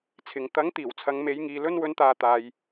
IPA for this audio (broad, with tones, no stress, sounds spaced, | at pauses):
t͡sʰ ɪ˨ ŋ t̪ ɐ˨˥ ŋ t̪ iː˨˩ w t͡sʰ ɐ˨˧ ŋ m e˨˧ j ŋ iː˨ l ɵ˧ n w ɵ˨˧ n t̪ aː˨ t̪ aː˨ j